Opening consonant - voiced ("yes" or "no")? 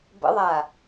yes